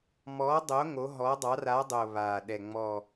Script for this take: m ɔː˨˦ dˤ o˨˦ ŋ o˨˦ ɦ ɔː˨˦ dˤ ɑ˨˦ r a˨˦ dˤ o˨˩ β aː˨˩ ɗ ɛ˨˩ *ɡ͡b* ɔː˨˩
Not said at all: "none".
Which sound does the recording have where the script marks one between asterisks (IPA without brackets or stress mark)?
ŋ͡m